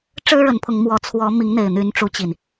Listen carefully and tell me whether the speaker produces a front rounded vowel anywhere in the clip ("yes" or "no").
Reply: yes